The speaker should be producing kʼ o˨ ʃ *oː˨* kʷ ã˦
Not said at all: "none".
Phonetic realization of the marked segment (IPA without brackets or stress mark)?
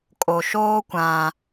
oː˦